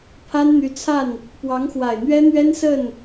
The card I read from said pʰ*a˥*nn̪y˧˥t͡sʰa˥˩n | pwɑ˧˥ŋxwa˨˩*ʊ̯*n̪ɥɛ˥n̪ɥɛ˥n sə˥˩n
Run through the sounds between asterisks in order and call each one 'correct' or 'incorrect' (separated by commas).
correct, incorrect